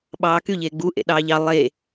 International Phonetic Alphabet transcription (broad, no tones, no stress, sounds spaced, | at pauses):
ɓ ɑː k y ʎ eː ɡ͡b u ʔ ḛ ɗ ɑː ʎ ɑ lˠ e